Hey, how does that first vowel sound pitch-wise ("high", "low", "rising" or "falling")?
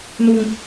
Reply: low